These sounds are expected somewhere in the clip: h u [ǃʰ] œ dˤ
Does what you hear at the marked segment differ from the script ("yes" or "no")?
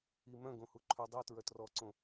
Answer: no